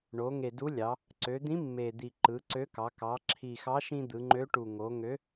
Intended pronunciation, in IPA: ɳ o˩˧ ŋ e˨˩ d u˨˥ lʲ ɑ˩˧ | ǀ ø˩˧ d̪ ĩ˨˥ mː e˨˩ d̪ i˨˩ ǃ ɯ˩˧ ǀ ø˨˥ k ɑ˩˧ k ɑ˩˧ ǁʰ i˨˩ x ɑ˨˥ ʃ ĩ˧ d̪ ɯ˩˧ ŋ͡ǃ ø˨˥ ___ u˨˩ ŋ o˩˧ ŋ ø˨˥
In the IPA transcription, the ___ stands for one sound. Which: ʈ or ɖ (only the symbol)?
ʈ